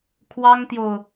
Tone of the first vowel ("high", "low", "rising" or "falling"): high